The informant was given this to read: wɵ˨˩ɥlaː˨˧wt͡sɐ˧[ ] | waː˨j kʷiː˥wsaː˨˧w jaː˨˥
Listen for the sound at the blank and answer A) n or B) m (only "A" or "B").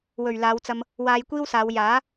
B